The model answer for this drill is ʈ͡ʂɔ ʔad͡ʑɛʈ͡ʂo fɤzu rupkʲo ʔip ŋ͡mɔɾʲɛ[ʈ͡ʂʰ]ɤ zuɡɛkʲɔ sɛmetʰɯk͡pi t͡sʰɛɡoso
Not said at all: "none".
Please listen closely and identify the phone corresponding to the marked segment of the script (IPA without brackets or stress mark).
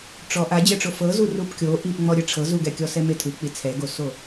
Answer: ʈ͡ʂʰ